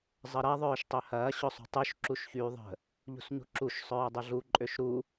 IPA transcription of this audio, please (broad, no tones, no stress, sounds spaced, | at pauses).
zˤ ə ɾ ɐ ðˤ œː ʃ tˤ ø h ɐː ɕ ʊ sˤ ṳ tˤ y ʃ ǁ u ʃ ç yː ðˤ ə̤ | ʎ ṳ s ɲ ṳ ǁ u ʃ sˤ œː dˤ ʊ ɮ u ǃʼ ø ʃ ɾ u